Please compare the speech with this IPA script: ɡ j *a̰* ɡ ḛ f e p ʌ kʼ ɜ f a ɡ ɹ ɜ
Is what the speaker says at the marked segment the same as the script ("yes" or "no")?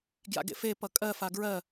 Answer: yes